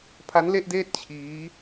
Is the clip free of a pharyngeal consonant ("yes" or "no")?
yes